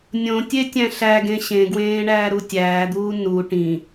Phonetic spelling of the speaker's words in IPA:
nʲõ tʲetʲæ̃ɬæɡẽ ɕẽɡwẽː ɳæːɾutʲæːd̪uː nu ʈĩ

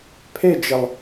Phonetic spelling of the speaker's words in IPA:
pʰed͡ʒɘlˠ

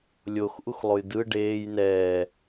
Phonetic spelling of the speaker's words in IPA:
lʲox ʔuxlˠojdɯ ɖeːj nɛː

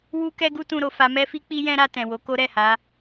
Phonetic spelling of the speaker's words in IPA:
wu˦kɛ˦ɡu˦tũ˧ ɾo˨fa˧mɛ˦fi˦ k͡pi˦jɛ̃˦ɾa˧ tɛ̃˨wo˨˦ko˦ ɾɛ˦˨ ha˨˦

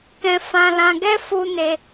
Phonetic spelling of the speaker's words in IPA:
kɛ̃˦fã˦ lã˧ɡɛ˦ fu˦ne˦

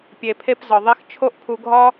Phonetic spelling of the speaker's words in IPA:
pʲe˩pʰe˧pzɒ˩ðˤe˧x t͡ʃʰo˥ʔpʰu˧ ɡʱɒ˥

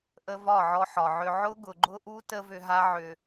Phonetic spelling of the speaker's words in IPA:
ʔə˧ vɒ˦˨ʕɔ˧ħɒ˨ʕʏ˧ ʕʊ˦ɡʊ˨ɡ͡ǃʊ˦ʔu˦ tə˦vʏ˧ɦa˦ʕʏ˧

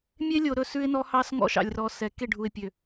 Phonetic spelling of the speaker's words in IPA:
mʲe˦lʲo˨ ɾɵ˦˨sʉ˦ɪ̯nɔ˦hɑ˦s ŋɔ̰˦ʃɑ̰˨lʲrɔ˨ sɛ˨ ke˦˨ɖʱu˨ɪ̯pʲø˨

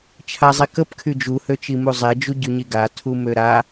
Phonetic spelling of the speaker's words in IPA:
t͡ʃʰazˤikəp kʰyd͡ʒuhø t͡ʃimuzˤed͡ʒu ɟyɲiɡa tʰumøɾa

